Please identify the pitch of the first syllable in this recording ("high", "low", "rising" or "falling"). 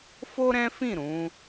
high